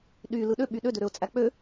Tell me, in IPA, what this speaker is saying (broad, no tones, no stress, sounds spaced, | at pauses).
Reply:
ɗ y l ɯ ɗ ø ɓ y ɗ ø d ø ɾ ø ʊ̯ t͡sʼ æ k͡p ø